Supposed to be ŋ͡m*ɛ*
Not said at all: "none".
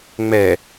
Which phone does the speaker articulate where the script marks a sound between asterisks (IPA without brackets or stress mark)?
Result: ɛ